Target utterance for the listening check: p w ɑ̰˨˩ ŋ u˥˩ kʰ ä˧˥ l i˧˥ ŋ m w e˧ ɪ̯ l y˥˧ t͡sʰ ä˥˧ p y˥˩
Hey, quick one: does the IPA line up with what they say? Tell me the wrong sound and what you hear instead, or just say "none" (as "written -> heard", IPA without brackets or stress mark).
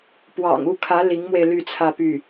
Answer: none